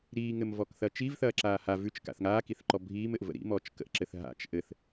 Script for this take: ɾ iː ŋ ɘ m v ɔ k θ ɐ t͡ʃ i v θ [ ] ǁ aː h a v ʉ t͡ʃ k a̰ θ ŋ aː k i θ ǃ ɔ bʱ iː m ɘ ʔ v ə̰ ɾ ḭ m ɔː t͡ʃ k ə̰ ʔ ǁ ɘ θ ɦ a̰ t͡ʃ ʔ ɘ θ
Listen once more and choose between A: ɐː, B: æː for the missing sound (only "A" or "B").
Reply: A